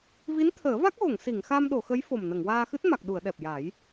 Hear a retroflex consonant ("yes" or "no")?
no